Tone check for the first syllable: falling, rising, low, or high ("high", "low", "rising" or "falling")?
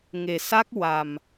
low